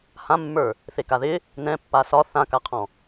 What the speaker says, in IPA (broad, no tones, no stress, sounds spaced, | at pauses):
h ã mː ə˞ | θ e k a ð ɪ | n ɛ̃ pː a s ɒ θ ã k a qʰ ɔ̃